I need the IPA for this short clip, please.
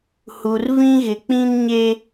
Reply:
h u˨ r v ĩ˦ ɣ ɪ˨ k͡p ĩ˦ n ɲ e˦

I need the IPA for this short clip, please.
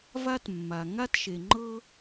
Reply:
v a˥ t mː a˩ ŋ a˥ t ʃ e˩ ŋ͡ǃ ɤ˥

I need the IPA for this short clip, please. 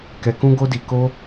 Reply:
k ɛ˧ k ũ˦ ɡ o˦ d i˧ k o˦

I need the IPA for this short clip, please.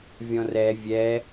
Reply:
vʲ ɔ̃ r ɛ vʲ ɛ

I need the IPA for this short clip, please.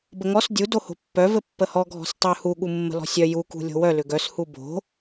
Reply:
b ə ŋ ɔ s dʲ u d o h o̤ pː œ v ɘ pː ə h ɔ ɡʱ ɔ̤ s tˤ œ h u ɠ u mː ə̤ l ɔ̤ sʲ œ j u k ṳ lʲ o̤ w œ l ʏ ɡ œ s h u b o̤

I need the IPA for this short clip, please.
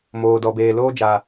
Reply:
m oː˨ d ɔ˨ b eː˨ l oː˦ d͡ʒ a˨

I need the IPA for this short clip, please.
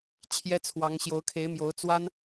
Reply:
t͡ɕʰ j ɛ˥ t͡sʰ w ɑ˧˥ ŋ ɕ j o˧˥ ʊ̯ kʰ e˧˥ ɪ̯ m j o˧˥ ʊ̯ t͡s w a˥ n

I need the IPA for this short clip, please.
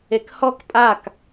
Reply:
e k h ɔ k pʼ a k

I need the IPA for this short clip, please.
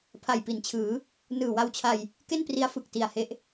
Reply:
pʰ a˨˩ j p i˩˦ n t͡ɕʰ ɯː˩˦ | n ɯː˨˩ w a˧ w t͡ɕʰ a˧ j | k e˥˩ n p r i˦˥ a̯ f ɯ˨˩ k̚ t i˨˩ a̯ h e˦˥ ʔ

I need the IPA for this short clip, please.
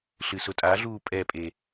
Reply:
ɬ ɨ s ʊ tʼ a ɮ uː pʼ ɛ pʼ e

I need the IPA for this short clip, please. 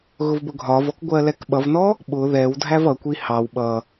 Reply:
ɣ ʊ v b ʊ ɡʱ ɒ v ɔ k ɡʷ ɜ l ɛ k ɓ ʌ v n ɔ | ɓ ʊ ð ɛ w dʱ æ v ʌ kʷ i h ɑ w ɓ ʌ

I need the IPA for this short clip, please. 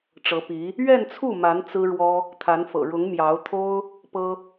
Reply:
ʈ͡ʂ ɤ˧˥ p i˧˥ | ɥ ɛ˥˧ n t͡sʰ u˥˩ m a˧˥ n t͡s ɹ̩˥ ɻ w ɔ˥ | t̪ʰ a˧˥ n f ɤ̰˨˩ ɻ ʊ˧˥ ŋ m j ɑ˧˥ ʊ̯ t̪ʰ o˥ ʊ̯ | p ɤ˥

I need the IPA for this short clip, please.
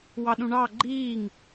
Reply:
w ɑ ɗ ũ ɳ ɑ ɡ͡ǃ iː ŋ

